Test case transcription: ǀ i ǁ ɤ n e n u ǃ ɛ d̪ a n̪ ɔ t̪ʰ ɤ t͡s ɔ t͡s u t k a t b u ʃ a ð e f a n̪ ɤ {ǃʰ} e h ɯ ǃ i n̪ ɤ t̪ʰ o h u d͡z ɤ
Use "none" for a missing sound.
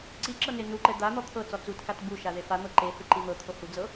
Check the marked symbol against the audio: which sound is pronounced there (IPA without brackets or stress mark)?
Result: ǃ